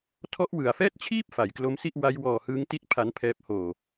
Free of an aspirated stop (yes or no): no